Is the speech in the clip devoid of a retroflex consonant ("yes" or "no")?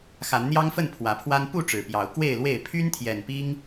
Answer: no